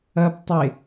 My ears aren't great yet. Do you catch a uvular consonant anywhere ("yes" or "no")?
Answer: no